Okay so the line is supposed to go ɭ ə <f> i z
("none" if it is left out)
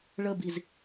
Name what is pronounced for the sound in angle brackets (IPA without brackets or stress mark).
b